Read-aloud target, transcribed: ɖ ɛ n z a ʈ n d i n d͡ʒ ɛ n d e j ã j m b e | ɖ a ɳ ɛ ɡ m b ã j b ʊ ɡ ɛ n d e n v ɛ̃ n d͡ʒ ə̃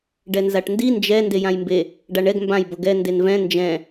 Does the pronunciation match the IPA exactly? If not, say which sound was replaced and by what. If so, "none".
ə̃ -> ɛ̃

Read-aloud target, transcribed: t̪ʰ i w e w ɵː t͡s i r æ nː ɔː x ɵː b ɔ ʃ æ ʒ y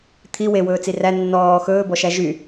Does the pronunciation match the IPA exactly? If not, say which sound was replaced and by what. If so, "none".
none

